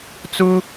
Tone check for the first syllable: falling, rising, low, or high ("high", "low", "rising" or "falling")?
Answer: high